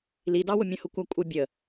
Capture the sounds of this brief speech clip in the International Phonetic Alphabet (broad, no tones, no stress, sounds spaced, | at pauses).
l i d ɑ w ʊ mʲ ə̃ h ʊ kʷ æ kʷʼ ɪ bʲ ə